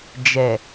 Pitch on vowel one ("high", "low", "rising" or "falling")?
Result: low